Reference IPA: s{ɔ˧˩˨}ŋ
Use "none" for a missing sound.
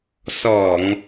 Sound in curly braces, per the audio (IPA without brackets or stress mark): ɔ˧˩˨